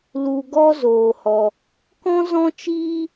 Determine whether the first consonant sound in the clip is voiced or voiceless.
voiced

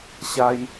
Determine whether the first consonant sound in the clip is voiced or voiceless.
voiceless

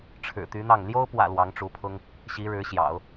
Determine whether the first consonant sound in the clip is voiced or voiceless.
voiceless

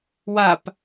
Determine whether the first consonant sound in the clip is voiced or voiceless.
voiced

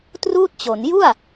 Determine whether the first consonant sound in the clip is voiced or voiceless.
voiceless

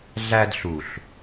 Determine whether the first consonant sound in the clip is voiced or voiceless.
voiced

